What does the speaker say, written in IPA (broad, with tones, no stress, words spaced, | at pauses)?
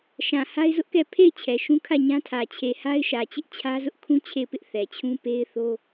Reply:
ʃã˨ ha˦ɪ̯zʊ˦ʔkɛ˦˨ pʰe˦˨ɪ̯ t͡ɕʰɛ˨ʃũ˦ kʰä˦˨ ɲã˦tʰä˨ t͡ɕʰe˨ha˦ɪ̯ʃä˨t͡ɕɪ˦ʔ t͡ɕʰä˦zʊ˦ʔkʰũ˦ t͡ɕʰe˦˨ɪ̯pɪ˦ʔ θɛ˨t͡ɕʰũ˦ pe˦ɪ̯θo˦